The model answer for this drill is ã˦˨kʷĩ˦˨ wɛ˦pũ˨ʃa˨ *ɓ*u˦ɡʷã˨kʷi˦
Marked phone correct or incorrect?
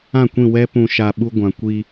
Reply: correct